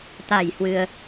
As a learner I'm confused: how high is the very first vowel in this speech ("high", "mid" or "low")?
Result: low